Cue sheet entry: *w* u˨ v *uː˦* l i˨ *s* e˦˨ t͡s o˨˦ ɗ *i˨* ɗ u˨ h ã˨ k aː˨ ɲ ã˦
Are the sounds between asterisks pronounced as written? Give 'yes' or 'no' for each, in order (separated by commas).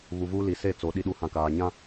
no, yes, yes, yes